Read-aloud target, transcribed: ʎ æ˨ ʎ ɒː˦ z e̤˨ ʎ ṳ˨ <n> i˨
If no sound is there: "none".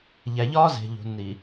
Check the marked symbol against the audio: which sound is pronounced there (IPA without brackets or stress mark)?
n